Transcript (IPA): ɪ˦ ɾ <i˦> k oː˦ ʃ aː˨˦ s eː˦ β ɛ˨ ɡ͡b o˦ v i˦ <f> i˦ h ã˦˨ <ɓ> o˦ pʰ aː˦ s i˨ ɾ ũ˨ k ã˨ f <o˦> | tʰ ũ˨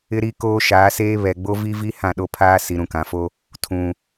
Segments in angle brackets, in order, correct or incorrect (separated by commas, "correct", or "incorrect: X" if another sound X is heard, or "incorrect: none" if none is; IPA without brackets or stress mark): correct, incorrect: v, incorrect: ɗ, correct